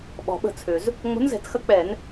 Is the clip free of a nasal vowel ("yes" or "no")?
yes